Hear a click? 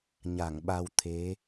no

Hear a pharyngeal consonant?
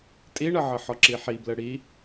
yes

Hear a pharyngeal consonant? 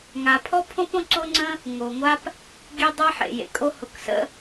yes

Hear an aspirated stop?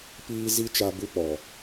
no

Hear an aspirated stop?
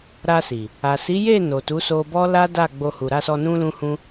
no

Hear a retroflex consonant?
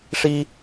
yes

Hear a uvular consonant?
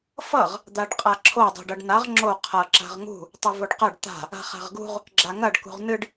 yes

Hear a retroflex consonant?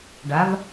yes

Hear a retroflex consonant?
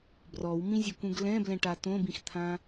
yes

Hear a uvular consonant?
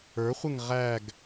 yes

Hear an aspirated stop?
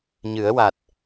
no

